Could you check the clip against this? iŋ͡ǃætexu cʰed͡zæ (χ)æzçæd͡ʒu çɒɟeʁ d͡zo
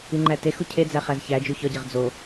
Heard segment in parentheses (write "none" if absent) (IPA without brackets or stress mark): χ